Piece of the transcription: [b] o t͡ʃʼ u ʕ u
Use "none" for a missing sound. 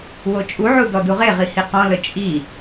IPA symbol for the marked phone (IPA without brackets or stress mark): w